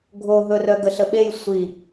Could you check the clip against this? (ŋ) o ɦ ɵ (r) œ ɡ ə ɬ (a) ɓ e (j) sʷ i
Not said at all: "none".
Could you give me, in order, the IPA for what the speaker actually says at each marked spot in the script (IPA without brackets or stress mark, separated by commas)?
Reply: ɡʱ, r, ə, j